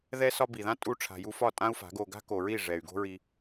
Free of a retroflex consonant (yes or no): no